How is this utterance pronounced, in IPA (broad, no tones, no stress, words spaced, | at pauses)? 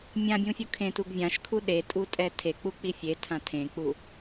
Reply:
mʲãbʲũfʲu kʰẽtuɡ vʲãʃkʰu ɗetʼutʼɛ tʰek͡puk͡pi fʲetʰã tʰẽk͡pu